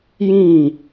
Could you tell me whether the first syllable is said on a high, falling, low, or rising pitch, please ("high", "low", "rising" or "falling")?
falling